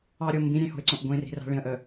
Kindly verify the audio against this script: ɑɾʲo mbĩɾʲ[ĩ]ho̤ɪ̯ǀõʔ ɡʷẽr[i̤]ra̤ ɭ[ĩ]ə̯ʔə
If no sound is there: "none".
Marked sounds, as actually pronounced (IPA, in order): ẽ, i̤, ĩ

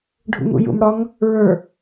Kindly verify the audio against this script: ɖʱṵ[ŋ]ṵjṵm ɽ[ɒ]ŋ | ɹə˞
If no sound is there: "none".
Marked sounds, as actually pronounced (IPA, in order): ŋ, ɒ

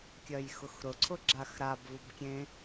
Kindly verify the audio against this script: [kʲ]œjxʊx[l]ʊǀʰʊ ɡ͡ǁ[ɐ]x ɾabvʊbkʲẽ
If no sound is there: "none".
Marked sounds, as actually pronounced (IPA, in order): kʲ, ɾ, a

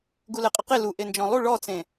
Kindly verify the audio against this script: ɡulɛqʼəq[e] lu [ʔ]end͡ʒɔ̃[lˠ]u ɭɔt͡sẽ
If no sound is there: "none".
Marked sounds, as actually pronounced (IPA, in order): e, ʔ, lˠ

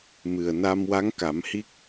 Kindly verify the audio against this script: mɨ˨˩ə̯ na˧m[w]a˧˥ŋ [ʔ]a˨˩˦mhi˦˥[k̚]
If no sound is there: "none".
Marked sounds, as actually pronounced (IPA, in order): w, k, k̚

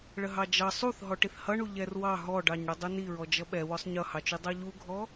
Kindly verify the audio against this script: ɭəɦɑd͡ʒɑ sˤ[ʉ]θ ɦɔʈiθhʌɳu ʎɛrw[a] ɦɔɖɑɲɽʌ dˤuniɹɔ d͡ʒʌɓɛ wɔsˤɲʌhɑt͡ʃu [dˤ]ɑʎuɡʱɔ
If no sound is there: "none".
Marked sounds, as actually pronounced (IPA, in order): u, ɑ, dˤ

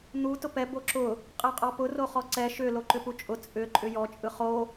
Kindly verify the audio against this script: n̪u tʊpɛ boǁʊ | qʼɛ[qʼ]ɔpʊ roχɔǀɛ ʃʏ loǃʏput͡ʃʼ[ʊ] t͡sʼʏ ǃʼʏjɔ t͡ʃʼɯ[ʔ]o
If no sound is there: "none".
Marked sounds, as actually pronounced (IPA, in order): qʼ, ʊ, χ

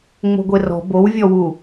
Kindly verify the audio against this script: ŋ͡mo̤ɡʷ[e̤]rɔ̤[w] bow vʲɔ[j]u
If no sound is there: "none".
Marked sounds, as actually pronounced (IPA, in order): e, none, w

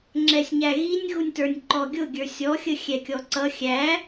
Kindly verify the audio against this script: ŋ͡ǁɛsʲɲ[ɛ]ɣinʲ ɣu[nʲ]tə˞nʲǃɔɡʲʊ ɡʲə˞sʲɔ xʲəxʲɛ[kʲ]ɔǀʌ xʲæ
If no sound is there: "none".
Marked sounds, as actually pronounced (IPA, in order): æ, nʲ, kʲ

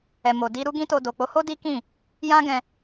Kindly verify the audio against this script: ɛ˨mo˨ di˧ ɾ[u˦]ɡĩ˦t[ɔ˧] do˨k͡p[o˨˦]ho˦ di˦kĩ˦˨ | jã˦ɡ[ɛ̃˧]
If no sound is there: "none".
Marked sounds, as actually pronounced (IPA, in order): u˦, o˧, o˨˦, ɛ̃˧

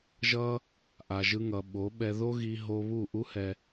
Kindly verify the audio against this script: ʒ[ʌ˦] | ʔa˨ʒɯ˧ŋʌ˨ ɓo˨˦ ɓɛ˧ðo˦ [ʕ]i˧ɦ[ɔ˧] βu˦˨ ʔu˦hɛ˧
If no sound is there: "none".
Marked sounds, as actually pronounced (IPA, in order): ʌ˦, ɣ, o˧

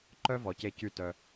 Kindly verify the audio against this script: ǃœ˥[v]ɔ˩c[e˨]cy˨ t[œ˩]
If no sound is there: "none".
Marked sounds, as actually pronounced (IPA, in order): v, e˨, œ˩

